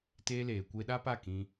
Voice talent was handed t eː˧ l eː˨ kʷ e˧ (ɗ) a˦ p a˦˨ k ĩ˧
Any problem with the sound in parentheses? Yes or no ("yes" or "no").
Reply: no